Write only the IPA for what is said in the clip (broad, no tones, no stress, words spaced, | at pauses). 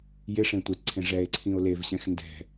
jɪʂẽ tʷɪtǀʰẽ ʐɛe̯ǀʰĩo̯ levɕɛ̃x ndɛ̤